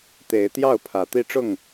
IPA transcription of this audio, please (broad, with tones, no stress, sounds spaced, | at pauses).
t̪ e˨˦ ɪ̯ t̪ j ɑ˥˨ ʊ̯ pʰ ä˨˦ t̪ i˦ ʈ͡ʂ ʊ˥˨ ŋ